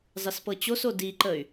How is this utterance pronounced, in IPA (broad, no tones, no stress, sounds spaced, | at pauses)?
zˤ ɨ s p ɤ t͡ɕ o s o d i ǃ ə y̯